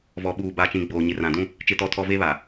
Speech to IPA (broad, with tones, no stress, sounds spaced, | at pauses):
v ɔ˨ ɓ uː˨ b a˨ t͡ʃ ĩ˨ ɡ͡b oː˨ ɲ ɪ˨ r ã˨ d ũ˦ | t͡ʃ ɪ˦ t ɔ˦ tʰ ɔ˦ v e˦ β a˨